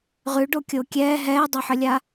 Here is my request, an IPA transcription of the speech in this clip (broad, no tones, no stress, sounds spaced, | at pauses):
ʁ ʉ ɖ o kʲ o kʲ ɛː ɦ ɛː dˤ ɛ ħ ə lʲ a